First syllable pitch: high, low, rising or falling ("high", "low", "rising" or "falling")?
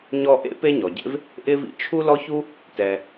high